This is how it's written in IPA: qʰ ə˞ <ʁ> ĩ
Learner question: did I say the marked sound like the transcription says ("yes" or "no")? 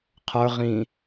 yes